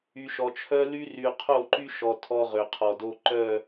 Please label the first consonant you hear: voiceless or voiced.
voiceless